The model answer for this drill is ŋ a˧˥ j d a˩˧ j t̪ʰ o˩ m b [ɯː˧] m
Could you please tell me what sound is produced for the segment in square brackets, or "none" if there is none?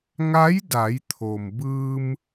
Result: ɯː˧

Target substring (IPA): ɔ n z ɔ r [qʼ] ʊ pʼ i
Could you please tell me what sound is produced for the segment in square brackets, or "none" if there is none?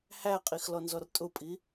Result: tʼ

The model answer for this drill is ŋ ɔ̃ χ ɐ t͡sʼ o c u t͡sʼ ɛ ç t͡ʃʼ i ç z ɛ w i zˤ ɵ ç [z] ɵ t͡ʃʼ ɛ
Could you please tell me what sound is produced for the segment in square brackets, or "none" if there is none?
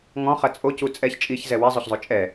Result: zˤ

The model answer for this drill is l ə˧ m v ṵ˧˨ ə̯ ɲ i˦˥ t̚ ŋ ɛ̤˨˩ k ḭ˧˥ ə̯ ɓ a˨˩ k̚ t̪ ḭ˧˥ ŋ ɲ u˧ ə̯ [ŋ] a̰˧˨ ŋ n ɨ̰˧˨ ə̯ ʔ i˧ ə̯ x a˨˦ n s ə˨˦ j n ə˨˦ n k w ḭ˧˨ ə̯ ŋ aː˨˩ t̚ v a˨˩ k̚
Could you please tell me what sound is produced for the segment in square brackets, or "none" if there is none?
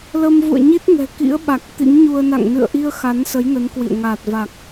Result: n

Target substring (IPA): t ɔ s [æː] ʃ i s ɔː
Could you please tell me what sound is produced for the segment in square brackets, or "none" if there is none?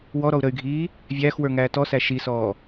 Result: æ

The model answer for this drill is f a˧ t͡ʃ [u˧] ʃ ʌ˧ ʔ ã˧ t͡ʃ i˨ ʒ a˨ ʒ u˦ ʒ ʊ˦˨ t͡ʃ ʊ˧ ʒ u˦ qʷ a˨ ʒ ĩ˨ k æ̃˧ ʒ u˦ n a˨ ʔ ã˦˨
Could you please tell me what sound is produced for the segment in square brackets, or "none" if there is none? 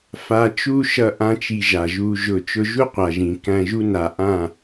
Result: u˦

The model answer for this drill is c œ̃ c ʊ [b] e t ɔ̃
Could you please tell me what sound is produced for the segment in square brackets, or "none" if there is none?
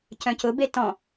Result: b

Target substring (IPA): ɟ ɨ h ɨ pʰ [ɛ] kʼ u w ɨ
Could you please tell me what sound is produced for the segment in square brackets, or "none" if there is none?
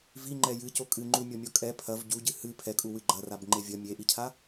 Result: ɛ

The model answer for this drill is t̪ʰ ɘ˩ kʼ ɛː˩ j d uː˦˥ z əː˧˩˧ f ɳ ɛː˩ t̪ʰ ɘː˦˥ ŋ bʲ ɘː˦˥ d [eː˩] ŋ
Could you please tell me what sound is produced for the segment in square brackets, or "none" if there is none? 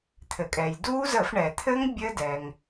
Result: ɛː˩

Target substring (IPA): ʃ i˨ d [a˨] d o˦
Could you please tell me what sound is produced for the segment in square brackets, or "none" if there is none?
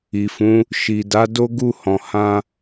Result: a˨˦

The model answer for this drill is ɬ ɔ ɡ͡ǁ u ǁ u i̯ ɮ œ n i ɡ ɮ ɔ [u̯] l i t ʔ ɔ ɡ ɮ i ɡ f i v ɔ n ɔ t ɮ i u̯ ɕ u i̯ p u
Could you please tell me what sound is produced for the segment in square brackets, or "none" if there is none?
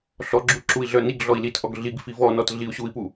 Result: i̯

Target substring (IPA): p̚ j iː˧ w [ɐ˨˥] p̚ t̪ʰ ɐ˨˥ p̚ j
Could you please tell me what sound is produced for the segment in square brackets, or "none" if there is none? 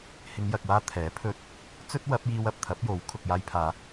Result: ɐ˨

